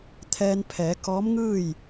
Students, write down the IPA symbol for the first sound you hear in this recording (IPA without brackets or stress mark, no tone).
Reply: t̪ʰ